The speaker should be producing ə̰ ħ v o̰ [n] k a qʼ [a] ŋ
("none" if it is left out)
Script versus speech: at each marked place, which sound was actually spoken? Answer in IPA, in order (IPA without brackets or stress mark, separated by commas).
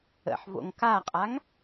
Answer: ŋ, a